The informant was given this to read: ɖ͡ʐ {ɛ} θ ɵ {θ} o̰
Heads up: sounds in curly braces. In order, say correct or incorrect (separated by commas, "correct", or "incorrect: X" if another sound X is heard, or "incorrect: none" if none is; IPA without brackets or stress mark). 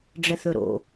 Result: correct, incorrect: ɾ